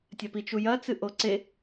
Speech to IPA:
tʲ ɐ p i t͡ʃ u j ɐ t͡s ɨ ʔ o ǀ e

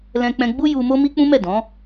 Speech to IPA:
l ɛ̃˧ k͡p ɛ̃˧ ɡ͡b u˦ j u˧ m o˦ m i˦ k͡p ũ˦ m ɛ˦˨ d ɔ̃˨˦

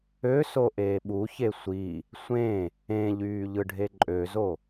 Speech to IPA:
ø s o ʔ eː ɓ u ç e sʷ i | sʷ ẽ | ẽ ʎ yː ʎ ɯ ɖʱ e ǃʼ ø z o

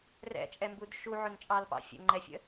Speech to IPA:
r ɛ̰ t͡ʃʼ ɛ m b u d ʃ u ʕ ʊ n t͡ʃʼ ɑ l p ɑ̰ fʲ ə̰ ŋ͡ǃ ɛ fʲ ə̰

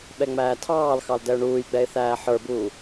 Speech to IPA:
ɓ ɛ ŋ͡m æː tʰ ɑː l x ɑ l d ɛ ʊ̯ ɳ uː j ɡ͡b ɛ ɪ̯ θ æː ħ ə˞ b uː

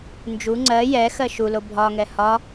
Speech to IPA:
n d͡ʒ u ŋ͡ǀ ɜ j ɛ x ɜ ʃ u l o bʱ ɒ ŋ ɛ h ɒ

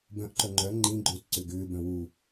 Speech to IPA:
b œ̃ ʔ ǃ œ ŋ͡ǃ œ ŋ͡ǃ ĩ ɡ͡ǃ ʏː t ǀ ʏ ɡ ʏː b œ̃ w u

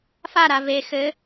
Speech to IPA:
f a ɾ a v e x ɘ

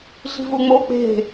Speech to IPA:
ɮ i̤ v u ŋ͡m o k͡p e̤

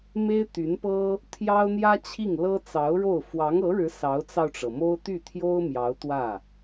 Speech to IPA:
m e˥ ɪ̯ t̪ y˧˥ n p ɤ˥ | t̪ʰ j ɑ˥ ʊ̯ n̪ j ä˥ t͡ɕʰ i˥˩ ŋ l ɤ˥ t͡s ɑ˧˥ ʊ̯ ɻ o˥˩ ʊ̯ f w ɑ˧˥ ŋ ɤ˧˥ ɻ ɻ̩˧˥ s ɑ˧˥ ʊ̯ t͡s ɑ˧ ʊ̯ ʈ͡ʂ ɤ˩ m o˥ ʊ̯ t̪ y˥˩ t̪ʰ j o˥ ʊ̯ m j ɑ˧˥ ʊ̯ t̪ w ä˥˩

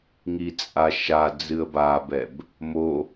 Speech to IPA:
ŋ i t͡sʼ a ʃ a d͡z ɨ ə̯ b a b ɛ b | m o

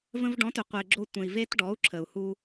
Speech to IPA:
v ə̃˧ v ɖ ɔ̃˨˦ t ʏ˨ qʷ e˨ ɡ͡ǁ o˧ tʷ ə̃˨ i̯ v e˦ t ɖ ɔ˨˦ u̯ ǁʰ ə˨ u̯ h u˧

